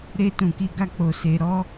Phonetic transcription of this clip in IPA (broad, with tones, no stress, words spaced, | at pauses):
ɾe˧ tũ˨ki˧ɡa˦k͡po˧ se˧ ɾɔ˧